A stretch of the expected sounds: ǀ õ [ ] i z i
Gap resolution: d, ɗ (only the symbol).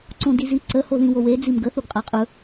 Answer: d